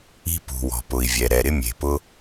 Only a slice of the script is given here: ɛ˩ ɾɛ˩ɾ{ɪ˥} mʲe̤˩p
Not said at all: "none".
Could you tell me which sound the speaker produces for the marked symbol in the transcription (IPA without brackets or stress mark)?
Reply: ɪ˥